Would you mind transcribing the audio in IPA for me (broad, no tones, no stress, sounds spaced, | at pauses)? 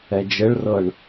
ɛ d͡ʒ ɘ ɭ r ɤ ɳ